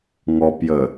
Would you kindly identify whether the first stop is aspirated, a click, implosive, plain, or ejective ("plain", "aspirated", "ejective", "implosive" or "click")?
plain